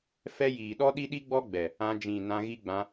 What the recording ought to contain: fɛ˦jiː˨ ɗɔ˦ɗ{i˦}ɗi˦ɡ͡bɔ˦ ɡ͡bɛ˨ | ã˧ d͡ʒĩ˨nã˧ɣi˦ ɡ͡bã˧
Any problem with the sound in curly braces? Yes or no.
no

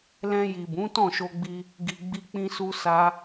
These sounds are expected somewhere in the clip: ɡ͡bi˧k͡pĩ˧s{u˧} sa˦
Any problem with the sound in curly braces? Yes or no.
no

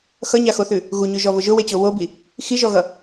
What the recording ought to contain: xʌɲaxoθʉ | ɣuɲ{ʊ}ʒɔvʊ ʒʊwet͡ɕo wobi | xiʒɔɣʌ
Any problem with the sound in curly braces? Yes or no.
yes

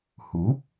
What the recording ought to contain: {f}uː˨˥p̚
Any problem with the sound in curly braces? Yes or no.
yes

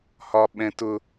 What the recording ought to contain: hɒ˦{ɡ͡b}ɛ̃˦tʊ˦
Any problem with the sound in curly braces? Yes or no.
yes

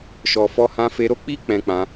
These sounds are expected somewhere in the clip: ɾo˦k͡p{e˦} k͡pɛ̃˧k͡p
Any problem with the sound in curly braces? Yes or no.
yes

